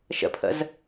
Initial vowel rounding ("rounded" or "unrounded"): unrounded